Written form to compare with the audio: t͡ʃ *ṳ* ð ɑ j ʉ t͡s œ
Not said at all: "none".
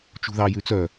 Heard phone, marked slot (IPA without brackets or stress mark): ṳ